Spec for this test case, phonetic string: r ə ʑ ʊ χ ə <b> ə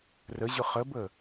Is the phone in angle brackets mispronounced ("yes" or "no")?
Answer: no